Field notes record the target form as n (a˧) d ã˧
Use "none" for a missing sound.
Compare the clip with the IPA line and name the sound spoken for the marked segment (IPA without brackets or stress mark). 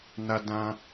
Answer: a˧